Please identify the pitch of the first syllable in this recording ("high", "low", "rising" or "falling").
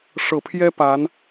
low